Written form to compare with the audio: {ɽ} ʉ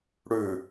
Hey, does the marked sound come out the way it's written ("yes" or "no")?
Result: yes